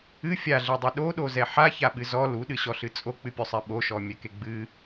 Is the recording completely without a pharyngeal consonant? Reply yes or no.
no